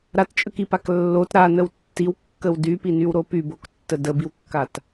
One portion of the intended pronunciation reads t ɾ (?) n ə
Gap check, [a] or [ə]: a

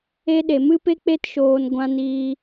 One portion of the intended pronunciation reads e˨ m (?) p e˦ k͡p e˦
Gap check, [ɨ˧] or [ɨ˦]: ɨ˦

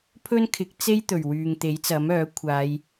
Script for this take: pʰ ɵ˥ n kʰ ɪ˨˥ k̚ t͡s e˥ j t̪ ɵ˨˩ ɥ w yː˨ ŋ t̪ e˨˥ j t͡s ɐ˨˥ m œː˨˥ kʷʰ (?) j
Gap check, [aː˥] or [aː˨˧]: aː˨˧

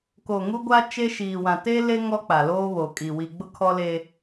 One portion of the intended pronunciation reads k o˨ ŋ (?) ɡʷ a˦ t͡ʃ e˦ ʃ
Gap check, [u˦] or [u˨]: u˦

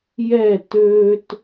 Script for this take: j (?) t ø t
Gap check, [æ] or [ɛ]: ɛ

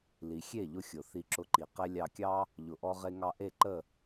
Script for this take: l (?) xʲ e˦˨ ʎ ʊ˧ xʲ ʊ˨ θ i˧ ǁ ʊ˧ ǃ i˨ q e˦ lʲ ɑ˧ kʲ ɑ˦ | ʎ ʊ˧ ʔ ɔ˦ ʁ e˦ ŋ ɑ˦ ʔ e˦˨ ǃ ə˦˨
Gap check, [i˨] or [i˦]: i˨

